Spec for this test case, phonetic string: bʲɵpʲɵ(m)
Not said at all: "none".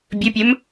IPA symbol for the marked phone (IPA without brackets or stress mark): m